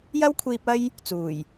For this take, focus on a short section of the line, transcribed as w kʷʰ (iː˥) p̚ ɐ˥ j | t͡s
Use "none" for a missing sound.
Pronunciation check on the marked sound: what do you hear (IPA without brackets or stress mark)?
iː˧